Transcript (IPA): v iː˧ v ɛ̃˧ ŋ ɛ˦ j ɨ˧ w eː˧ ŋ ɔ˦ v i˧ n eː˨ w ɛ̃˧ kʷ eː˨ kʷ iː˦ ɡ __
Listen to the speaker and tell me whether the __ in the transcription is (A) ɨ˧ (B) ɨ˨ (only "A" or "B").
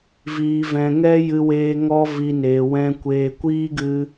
A